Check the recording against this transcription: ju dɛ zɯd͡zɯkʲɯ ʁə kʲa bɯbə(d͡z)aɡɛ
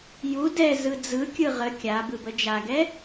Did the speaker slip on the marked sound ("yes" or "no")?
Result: yes